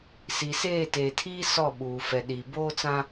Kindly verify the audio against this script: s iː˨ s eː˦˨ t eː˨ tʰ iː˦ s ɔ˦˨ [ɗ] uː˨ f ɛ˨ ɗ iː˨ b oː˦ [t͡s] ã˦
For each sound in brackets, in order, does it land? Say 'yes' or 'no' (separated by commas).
no, yes